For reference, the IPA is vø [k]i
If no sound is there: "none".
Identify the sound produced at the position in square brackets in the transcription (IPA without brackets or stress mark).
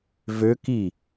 k